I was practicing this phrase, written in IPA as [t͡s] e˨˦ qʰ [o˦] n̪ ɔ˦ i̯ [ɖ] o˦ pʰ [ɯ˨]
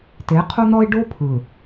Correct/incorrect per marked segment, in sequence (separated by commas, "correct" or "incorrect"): incorrect, correct, correct, correct